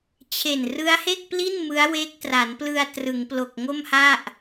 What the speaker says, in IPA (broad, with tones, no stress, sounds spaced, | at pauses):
t͡ɕʰ e˨˩ n r ɯ˦˥ a̯ h e˥˩ k̚ p l i˥˩ n m ɯ˦˥ a̯ w eː˦˥ k̚ t r a˩˦ n p l ɯ˧ a̯ t r ɯ˩˦ ŋ p l o˨˩ k̚ ŋ o˥˩ m h a˥˩ ʔ